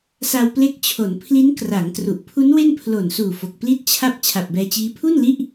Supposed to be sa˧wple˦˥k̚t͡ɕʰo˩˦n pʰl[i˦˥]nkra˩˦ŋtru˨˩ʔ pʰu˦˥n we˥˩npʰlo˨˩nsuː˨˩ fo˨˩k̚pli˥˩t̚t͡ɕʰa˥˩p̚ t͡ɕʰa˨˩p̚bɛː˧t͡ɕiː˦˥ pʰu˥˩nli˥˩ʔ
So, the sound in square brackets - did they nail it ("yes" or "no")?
yes